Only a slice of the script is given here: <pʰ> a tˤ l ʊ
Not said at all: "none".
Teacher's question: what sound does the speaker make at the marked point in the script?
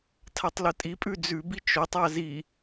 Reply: tʰ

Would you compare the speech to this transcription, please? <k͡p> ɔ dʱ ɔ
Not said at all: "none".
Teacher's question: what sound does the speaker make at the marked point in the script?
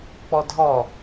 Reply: k͡p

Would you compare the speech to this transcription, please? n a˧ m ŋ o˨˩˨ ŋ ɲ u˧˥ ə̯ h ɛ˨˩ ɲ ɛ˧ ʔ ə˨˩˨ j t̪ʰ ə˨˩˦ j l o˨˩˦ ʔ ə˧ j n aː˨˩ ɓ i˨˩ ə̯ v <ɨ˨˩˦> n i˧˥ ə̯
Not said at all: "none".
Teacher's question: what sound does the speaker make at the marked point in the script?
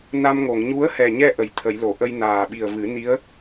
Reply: ɨ˨˩˦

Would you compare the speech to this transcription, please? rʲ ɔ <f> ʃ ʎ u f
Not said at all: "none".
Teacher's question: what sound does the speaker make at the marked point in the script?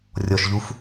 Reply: none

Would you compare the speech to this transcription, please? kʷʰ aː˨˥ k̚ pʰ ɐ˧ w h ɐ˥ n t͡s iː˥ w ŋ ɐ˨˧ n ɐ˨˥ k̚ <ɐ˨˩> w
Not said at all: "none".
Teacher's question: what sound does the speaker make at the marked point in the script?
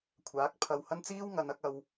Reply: ɐ˧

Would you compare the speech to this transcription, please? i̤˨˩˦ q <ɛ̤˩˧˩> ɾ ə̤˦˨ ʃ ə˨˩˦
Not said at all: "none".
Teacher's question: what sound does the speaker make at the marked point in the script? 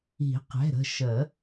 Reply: ɛ̤˩˧˩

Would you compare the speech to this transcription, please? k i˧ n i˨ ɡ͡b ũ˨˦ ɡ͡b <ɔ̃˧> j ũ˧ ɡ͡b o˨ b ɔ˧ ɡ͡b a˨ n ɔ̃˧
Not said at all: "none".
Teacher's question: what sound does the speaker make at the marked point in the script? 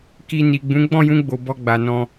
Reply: ɔ̃˦˨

